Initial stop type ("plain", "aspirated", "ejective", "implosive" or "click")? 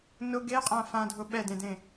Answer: plain